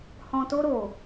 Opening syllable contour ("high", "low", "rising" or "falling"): low